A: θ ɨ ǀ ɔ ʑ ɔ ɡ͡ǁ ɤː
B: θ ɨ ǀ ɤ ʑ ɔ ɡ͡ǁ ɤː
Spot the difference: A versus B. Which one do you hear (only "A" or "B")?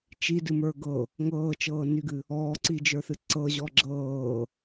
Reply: B